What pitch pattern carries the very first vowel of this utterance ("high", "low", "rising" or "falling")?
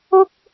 high